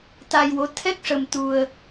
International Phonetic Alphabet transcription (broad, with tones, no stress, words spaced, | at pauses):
t̪a˧jwo˧˥ t̪ʰɛ˦˥k̚ʂə˧mt̪u˧ə̯